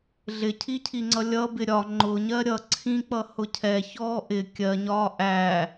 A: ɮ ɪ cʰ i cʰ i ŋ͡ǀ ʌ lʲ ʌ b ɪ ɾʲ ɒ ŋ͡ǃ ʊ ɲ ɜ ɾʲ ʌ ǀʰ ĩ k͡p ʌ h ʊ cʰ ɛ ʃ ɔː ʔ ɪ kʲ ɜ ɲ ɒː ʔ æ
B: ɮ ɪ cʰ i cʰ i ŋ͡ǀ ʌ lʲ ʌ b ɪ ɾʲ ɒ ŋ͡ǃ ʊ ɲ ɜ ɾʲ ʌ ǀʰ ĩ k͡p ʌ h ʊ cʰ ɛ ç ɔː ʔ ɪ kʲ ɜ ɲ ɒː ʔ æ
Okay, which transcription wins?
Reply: B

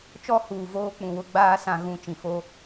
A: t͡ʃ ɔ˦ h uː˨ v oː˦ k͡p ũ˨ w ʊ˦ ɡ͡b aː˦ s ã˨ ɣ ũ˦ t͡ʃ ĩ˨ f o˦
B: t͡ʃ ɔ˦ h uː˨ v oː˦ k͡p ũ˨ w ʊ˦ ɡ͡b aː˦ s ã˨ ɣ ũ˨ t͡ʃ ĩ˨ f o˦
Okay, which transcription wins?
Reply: B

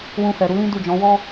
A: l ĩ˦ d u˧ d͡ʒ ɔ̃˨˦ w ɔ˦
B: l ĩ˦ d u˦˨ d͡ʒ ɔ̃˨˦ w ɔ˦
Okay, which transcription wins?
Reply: B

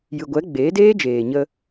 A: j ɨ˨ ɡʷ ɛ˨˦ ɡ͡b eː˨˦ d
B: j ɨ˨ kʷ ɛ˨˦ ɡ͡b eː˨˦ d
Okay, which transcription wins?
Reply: A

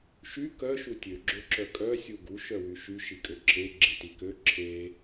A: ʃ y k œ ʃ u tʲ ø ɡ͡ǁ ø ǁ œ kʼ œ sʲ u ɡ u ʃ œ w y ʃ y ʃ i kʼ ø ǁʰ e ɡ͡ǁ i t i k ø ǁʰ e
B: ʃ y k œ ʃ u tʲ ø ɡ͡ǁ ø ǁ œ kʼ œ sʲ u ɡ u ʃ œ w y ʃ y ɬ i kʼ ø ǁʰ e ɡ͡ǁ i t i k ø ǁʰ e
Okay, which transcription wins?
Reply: A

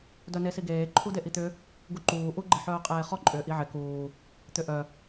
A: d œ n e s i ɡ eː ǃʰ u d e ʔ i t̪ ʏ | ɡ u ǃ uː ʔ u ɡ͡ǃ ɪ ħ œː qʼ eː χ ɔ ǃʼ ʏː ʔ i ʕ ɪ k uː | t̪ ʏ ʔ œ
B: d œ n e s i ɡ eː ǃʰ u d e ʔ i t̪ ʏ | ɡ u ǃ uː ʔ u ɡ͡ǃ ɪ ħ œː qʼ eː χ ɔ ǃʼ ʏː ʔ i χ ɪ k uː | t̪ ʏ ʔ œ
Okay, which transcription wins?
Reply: A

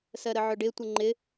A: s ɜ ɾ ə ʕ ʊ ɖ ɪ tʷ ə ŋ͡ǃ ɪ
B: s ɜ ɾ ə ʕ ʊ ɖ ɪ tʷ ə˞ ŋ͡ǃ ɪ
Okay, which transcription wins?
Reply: A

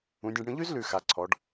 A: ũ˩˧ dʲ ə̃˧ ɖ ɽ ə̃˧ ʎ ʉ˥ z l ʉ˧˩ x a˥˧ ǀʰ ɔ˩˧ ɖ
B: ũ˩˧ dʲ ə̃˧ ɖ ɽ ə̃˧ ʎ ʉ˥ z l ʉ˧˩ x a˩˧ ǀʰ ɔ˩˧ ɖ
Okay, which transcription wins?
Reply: B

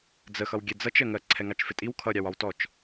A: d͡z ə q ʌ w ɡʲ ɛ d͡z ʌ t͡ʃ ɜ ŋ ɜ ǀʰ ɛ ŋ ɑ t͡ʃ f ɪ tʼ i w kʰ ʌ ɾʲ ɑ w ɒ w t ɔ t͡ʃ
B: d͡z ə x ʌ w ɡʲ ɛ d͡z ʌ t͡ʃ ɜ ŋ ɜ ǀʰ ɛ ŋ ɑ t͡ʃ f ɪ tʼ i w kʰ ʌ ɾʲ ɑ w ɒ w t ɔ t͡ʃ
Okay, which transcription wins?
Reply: B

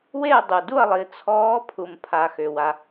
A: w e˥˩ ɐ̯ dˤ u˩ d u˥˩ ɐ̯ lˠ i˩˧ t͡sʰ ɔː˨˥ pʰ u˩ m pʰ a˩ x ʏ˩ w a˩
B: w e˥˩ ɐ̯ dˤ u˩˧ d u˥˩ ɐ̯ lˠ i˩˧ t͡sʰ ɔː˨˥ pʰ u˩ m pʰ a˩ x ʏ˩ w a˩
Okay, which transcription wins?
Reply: A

